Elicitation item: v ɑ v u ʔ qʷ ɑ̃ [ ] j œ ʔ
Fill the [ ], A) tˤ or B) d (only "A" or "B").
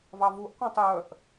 A